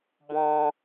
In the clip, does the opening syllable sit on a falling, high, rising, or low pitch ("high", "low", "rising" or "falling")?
high